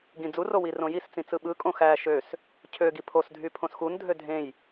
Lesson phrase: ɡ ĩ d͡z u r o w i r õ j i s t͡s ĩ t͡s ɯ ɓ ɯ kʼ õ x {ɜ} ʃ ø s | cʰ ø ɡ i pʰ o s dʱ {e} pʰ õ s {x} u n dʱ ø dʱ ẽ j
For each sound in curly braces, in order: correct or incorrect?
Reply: incorrect, incorrect, correct

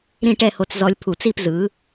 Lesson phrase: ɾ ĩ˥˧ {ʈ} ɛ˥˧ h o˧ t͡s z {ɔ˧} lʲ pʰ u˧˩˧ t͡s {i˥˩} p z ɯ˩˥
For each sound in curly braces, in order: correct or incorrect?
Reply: correct, correct, incorrect

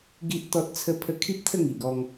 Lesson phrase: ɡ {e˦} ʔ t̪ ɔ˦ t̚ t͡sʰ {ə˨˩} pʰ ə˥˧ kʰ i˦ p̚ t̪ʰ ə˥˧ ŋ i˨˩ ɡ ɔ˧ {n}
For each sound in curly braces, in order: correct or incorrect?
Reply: incorrect, incorrect, incorrect

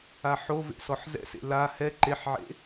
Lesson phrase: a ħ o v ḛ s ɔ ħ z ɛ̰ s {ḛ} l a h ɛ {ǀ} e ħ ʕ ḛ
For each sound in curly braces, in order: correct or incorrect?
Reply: correct, incorrect

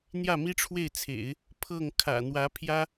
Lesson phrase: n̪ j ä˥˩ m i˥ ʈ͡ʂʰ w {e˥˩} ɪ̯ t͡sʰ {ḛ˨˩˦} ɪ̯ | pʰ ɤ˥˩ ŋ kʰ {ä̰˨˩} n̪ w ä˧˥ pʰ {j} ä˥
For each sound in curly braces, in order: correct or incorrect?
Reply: correct, correct, correct, correct

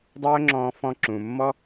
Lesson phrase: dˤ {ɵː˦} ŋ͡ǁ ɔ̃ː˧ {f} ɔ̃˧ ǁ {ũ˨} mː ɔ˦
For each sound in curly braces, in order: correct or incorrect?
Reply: correct, correct, correct

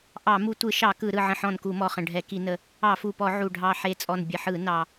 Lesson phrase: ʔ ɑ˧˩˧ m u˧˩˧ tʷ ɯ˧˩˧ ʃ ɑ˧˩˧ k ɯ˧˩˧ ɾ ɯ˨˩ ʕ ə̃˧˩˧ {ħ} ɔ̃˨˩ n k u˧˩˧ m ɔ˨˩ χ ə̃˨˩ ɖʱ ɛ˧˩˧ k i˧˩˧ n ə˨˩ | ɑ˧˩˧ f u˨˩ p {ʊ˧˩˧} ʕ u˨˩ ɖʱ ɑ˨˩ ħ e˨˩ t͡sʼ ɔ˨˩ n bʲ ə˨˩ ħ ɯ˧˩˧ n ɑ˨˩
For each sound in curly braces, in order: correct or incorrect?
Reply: correct, incorrect

